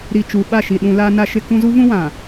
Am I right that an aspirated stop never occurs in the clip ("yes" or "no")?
yes